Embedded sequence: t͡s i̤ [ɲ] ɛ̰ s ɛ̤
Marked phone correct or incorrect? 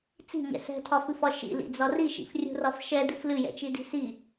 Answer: correct